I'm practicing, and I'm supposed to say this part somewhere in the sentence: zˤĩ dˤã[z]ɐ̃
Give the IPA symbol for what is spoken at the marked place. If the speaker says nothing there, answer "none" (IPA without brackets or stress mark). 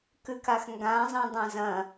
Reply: z